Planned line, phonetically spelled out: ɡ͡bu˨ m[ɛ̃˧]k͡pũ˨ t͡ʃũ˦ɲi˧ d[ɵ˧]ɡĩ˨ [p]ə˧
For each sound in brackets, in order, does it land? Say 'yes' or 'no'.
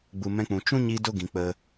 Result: yes, no, no

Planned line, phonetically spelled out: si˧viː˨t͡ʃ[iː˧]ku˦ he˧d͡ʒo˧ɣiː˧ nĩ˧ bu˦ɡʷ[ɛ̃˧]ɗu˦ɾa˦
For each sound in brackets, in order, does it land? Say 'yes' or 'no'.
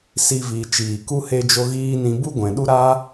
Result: no, no

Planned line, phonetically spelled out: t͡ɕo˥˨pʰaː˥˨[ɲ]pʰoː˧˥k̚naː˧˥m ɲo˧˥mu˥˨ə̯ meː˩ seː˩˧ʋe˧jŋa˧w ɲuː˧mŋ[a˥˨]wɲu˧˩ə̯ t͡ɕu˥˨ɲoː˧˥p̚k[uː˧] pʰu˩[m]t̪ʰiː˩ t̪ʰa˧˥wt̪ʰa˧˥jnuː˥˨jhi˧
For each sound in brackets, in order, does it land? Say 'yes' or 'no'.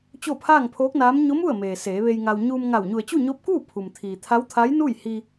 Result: no, no, no, yes

